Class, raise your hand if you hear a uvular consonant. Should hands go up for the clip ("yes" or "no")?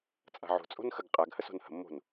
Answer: yes